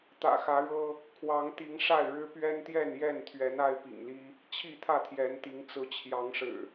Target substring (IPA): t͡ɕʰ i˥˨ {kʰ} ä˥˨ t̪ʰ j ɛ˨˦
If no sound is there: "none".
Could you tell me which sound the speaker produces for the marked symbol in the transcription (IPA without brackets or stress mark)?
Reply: t̪ʰ